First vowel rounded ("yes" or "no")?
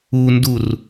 yes